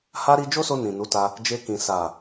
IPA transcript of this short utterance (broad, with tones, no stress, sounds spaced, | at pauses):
h a˧ ɾ i˧ d͡ʒ o˦ s o˧ n ĩ˨ n u˨˦ t a˧ | d͡ʒ e˧ k ĩ˨ s a˨